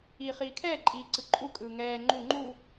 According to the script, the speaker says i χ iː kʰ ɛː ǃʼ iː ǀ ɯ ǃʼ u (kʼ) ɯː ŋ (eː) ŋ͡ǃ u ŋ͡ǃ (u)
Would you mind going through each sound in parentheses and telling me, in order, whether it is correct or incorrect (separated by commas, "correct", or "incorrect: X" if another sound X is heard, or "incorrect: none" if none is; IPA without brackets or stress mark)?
correct, incorrect: ɛː, correct